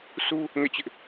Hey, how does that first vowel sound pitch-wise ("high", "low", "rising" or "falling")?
high